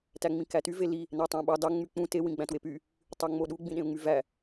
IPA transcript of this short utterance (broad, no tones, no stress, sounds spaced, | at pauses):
t æ ŋ͡m ĩ k æ t y v e l i | n æ tˤ æ̃ ɓ ɑ d ɑ ŋ͡m y k͡p ũ t e w ĩ ɡ͡b æ̃ t w e p y | tˤ ø ŋ͡m o ɗ u ɡ͡b ĩ ɗ ẽ ʊ̯ ŋ͡m y v æ